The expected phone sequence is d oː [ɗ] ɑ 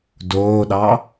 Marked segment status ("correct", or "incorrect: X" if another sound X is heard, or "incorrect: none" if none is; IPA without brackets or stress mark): correct